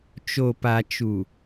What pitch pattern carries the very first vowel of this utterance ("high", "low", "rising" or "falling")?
low